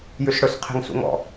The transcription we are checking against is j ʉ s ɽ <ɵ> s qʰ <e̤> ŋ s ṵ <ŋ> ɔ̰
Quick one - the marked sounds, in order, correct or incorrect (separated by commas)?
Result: correct, correct, correct